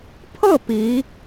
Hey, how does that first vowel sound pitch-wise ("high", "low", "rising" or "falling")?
falling